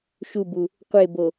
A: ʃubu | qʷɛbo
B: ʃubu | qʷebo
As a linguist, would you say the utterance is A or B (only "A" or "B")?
B